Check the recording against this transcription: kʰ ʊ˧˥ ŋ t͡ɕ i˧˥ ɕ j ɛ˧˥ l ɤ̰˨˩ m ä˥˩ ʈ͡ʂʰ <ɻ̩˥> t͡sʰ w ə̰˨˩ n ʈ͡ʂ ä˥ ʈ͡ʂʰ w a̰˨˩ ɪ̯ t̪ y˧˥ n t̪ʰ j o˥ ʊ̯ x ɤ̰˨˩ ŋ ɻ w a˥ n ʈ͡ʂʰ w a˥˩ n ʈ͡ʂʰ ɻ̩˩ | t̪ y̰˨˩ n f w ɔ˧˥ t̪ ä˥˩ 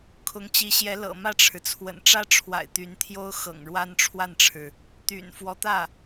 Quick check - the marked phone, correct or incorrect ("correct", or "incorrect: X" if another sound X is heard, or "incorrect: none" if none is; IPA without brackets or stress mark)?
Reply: incorrect: ɻ̩˩